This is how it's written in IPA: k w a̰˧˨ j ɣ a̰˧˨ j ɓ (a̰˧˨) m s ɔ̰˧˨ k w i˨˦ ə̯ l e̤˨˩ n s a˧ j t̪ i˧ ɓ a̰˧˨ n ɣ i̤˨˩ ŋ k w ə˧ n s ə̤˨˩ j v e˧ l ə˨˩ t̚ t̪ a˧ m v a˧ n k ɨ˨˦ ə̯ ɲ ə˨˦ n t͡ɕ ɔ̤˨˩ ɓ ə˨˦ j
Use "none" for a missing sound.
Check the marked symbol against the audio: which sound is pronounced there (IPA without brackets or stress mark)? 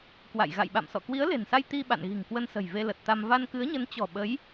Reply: a̰˧˨